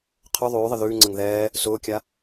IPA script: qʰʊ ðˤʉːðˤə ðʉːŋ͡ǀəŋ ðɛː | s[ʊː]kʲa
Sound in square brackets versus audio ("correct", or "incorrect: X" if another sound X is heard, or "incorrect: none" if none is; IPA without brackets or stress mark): correct